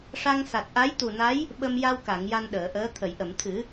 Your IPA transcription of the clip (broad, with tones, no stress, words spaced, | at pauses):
ʂa˧ŋsa˨˩t̚ʔa˧˥j t̪u˨˩na˧˥j | ɓə˧m ja˧wka˨˩˨ŋ ja˧nɗəː˨˩˨ʔəː˧˥ t̪ʰə˨˩˨jʔə˨˩˨mt̪ʰɨ˨˩˦